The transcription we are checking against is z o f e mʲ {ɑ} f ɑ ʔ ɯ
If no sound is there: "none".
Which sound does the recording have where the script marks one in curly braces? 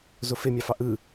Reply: ɑ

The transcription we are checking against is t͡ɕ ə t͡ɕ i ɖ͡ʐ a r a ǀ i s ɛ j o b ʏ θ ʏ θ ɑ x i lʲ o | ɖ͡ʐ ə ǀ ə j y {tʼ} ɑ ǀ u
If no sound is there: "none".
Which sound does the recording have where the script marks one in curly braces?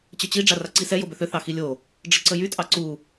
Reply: tʼ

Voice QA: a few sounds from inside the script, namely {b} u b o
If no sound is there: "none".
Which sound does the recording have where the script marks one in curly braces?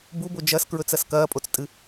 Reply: b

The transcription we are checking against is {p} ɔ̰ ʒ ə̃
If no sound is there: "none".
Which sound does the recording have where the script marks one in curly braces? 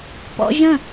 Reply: p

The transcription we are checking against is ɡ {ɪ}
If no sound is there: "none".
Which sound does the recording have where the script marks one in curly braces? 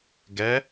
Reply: ɛ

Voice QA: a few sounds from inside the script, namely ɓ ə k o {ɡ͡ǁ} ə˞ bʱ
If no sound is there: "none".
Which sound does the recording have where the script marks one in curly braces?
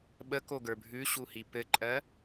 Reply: ɡ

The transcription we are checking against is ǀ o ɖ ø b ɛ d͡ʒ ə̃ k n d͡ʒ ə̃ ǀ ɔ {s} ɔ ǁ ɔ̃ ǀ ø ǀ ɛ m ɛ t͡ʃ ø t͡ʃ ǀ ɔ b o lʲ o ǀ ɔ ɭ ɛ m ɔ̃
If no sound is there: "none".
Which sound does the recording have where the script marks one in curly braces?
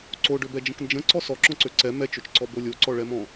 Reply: s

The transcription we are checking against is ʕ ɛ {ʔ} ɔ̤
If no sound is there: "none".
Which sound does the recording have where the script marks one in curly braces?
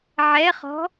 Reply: χ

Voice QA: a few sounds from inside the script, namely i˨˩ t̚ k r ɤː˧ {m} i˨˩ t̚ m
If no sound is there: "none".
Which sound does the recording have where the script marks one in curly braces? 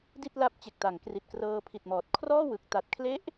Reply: pʰ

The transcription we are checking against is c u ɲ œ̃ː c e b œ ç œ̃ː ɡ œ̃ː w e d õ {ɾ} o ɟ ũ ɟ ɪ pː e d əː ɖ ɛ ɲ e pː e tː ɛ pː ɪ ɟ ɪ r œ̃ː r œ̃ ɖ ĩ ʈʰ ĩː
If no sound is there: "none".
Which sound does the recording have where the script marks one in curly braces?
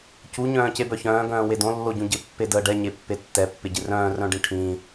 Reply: lː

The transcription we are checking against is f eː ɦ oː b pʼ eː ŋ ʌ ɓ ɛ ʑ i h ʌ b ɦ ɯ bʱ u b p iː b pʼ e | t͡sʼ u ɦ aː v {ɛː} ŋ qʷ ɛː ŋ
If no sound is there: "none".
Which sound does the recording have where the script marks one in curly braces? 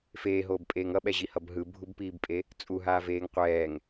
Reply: eː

